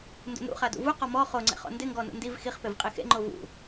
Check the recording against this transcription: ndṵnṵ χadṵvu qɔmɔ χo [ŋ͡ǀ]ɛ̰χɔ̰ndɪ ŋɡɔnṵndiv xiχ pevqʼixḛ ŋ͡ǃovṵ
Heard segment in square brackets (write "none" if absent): ŋ͡ǀ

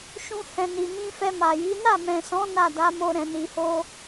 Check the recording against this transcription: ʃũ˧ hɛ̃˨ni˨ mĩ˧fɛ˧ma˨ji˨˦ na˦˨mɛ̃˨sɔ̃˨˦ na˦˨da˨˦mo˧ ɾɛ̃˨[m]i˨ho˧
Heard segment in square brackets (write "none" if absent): n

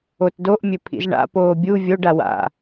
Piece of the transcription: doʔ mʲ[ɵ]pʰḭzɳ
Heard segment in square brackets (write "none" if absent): ɵ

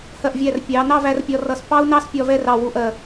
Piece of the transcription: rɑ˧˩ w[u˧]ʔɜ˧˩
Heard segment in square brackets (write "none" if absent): u˧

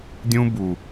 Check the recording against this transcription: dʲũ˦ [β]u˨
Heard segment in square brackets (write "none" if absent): b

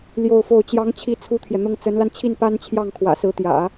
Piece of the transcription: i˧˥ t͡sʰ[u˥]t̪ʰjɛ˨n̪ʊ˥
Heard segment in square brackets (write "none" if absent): u˥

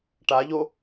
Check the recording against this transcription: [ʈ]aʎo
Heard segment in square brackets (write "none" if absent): ʈ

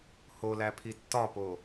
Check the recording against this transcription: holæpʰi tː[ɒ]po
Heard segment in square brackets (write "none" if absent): ɒ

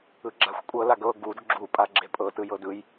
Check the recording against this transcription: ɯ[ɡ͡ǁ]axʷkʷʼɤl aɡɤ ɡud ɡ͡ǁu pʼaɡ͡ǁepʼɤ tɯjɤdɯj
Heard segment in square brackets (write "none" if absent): ɡ͡ǁ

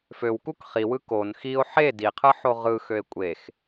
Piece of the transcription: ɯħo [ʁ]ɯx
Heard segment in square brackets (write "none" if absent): ʁ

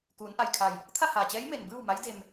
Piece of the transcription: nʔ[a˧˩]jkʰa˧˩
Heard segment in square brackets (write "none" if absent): a˧˩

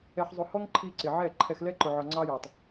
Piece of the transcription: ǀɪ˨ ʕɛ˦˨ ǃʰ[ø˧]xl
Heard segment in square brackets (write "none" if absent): ɛ˧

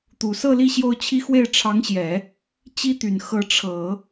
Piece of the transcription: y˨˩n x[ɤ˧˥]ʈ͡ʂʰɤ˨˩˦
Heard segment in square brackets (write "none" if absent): ɤ˧˥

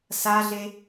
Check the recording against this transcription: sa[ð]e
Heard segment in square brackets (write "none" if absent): ɮ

